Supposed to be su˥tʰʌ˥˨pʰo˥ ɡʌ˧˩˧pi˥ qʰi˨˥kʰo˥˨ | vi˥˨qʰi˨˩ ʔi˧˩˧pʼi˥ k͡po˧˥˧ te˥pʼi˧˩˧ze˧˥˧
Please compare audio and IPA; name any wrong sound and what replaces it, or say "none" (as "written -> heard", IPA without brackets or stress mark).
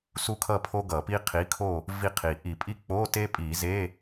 tʰ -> kʰ